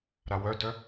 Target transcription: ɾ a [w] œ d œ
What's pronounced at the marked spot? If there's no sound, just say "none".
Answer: w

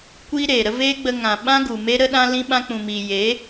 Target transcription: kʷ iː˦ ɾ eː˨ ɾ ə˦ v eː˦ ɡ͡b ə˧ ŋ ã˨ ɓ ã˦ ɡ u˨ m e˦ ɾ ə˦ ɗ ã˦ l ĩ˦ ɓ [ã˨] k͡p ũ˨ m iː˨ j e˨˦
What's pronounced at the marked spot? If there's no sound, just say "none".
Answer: ã˦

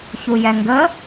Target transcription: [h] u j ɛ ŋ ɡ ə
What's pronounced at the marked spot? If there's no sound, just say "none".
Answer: ç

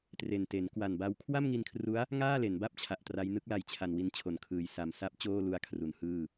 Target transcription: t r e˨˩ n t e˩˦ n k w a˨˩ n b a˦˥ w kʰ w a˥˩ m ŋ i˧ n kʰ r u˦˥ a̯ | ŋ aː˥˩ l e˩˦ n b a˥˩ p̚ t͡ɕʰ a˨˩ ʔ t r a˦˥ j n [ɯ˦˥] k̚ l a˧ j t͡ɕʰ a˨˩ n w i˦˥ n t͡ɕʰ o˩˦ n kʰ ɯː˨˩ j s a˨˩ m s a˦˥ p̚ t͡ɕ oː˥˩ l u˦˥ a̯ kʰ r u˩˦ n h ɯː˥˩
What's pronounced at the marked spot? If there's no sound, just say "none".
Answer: ɯ˦˥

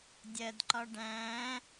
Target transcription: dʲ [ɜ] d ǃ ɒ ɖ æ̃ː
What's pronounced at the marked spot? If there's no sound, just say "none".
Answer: ɜ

